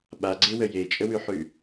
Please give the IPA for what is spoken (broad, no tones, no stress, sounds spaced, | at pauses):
ɓ a ɡ͡ǀ e w ə j e t͡ʃʼ ə w ʉ ħ ʉ